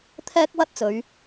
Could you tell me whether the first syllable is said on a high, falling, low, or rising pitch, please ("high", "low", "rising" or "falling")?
high